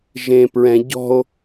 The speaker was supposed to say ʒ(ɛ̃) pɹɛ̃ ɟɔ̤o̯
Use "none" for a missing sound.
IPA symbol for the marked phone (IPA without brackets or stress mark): ẽ